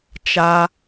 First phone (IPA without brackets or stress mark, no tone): t͡ʃ